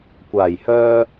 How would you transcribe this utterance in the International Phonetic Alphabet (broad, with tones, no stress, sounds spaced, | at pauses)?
kʷ aː˨˩ j h œː˧